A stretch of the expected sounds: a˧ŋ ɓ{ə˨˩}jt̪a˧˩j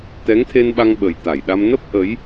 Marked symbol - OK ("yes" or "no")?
yes